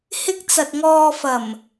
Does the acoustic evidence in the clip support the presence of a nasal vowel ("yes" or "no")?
no